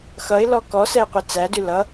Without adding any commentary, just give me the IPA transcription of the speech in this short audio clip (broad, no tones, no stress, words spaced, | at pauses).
xʌɪ̯lɔ kɔsɛɪ̯ qʷet͡sædʉ lʌ